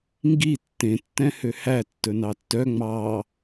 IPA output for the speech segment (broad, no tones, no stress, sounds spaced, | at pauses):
ŋ ɡ i tː ẽ tː ɛ̃ h ø h æ tː ɵ n ɑ tː œ ŋ͡m ɑ